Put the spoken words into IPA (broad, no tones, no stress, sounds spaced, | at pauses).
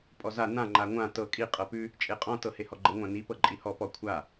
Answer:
pʼ ɔ z a n ã ŋ͡ǃ a ŋʷ ã t ɤ kʼ i qʼ ɤ p ʉ | t͡ʃʼ e qʼ ɔ̃ t ɤ h e h ɔ ɡ͡ǃ ə ŋʷ ã n i p ɤ ǃʼ i h ɔ p ɔ kʷʰ a